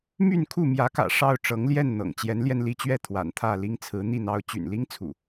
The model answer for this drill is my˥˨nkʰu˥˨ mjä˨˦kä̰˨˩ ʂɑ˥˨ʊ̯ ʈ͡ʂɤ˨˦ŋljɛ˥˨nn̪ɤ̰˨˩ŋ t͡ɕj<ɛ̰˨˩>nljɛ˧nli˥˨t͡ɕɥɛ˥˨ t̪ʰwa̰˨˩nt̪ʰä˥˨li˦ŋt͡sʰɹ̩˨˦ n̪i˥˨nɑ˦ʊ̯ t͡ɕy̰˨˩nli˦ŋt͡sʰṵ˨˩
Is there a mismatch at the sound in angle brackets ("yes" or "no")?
yes